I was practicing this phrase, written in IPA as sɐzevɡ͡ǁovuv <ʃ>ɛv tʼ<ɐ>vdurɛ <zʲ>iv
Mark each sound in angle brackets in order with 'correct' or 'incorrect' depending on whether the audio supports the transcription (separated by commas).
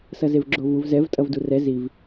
incorrect, correct, incorrect